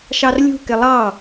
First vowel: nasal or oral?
oral